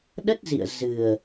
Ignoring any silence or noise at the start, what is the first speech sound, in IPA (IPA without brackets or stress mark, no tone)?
ɗ